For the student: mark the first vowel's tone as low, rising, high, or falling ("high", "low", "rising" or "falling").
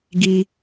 low